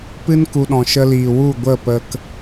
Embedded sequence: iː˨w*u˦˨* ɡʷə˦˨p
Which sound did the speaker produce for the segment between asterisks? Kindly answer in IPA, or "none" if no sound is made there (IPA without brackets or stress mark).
u˦˨